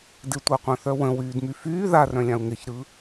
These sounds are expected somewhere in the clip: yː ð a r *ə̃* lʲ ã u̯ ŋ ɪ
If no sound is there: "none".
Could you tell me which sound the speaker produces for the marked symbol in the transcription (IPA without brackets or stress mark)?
œ̃